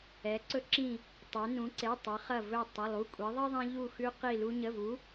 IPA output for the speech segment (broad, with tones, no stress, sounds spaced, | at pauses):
ɛ˩˧ ǀ ɵ˧ ǁ ĩ˧˩ | tˤ e˩˧ n ũ˩˧ ǀ e˩˧˩ tˤ ə˩˧ χ ɐ˧˩ v ɵ˧˩ tˤ ɐ˩˧˩ lˠ u˩˧˩ kʷʼ i˩˧ ðˤ ɐ˥ ðˤ ĩ˧ ʎ u˧˩ x ʉ˧ q i˧˩ l u˧ ɲ ə˩˧˩ v u˩˧